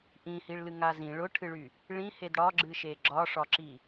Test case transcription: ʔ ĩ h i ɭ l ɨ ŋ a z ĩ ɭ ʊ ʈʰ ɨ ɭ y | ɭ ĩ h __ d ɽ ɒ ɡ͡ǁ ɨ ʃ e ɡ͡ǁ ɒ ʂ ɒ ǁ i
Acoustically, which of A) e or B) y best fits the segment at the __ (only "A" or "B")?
A